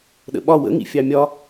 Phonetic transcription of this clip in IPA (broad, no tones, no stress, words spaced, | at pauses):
ɗə̰ɓɒ wə̰ŋḭ fʲɑmʲɒ